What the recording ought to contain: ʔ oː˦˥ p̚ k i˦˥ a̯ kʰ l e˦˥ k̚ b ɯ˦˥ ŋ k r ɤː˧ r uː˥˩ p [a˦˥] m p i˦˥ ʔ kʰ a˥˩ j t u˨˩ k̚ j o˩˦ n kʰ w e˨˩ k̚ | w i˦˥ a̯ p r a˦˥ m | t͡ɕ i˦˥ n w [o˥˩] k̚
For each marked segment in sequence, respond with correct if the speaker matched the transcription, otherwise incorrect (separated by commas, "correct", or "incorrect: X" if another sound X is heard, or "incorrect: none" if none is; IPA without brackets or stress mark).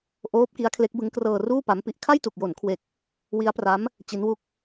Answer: correct, incorrect: u˥˩